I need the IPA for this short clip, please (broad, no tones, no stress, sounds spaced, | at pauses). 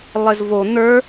lˠ ɘ z v o n̪ ə˞